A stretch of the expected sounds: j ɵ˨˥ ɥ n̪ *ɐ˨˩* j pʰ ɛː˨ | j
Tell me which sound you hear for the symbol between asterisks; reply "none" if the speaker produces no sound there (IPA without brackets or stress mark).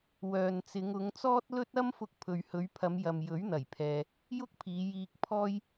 ɐ˨˩